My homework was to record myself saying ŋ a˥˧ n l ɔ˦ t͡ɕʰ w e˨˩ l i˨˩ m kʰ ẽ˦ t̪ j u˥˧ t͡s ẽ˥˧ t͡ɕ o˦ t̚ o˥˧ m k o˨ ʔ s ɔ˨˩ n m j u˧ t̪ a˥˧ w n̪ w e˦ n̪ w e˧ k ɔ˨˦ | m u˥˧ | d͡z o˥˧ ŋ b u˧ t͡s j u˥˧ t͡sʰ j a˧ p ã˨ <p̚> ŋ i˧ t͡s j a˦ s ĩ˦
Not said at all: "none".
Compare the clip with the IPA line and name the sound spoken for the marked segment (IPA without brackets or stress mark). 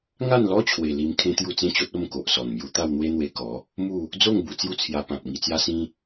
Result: p̚